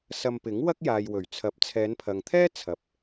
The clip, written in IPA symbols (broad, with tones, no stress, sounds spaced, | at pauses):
s ɐ˧ m p ɪ˨˥ ŋ w ɐ˥ k̚ j aː˨ j w ɵ˨˩ ɥ t͡sʰ ɐ˨˥ p̚ t͡sʰ ɛː˨˧ n pʰ ɐ˨ ŋ t̪ʰ ɛː˥ t͡sʰ ɐ˨˥ p̚